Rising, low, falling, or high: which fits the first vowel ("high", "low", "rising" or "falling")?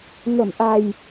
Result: low